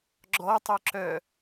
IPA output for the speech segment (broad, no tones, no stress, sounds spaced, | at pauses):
ɡ͡ǁ ɔ tˤ œ ǁ œ